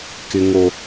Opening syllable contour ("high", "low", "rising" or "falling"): high